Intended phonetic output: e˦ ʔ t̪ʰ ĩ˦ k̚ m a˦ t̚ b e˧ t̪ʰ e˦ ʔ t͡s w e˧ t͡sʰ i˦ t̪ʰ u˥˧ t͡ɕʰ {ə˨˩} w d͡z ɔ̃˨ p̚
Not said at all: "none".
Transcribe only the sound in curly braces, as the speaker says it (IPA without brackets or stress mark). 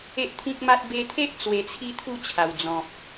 a˨˩